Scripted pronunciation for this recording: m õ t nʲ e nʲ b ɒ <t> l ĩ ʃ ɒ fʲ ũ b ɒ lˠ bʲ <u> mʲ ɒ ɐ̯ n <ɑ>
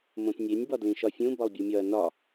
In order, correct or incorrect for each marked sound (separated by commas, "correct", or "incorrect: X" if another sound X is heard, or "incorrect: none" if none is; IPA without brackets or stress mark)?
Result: incorrect: d, correct, incorrect: ɒ